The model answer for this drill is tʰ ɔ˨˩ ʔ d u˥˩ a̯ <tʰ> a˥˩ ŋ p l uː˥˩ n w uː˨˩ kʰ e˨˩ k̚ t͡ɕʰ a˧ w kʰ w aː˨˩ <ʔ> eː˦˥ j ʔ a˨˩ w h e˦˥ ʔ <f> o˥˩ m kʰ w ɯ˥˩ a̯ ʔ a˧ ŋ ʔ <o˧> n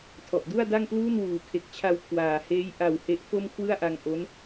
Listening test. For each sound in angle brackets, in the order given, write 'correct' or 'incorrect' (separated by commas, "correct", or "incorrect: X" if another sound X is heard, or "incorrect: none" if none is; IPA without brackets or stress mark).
incorrect: d, incorrect: h, correct, incorrect: o˦˥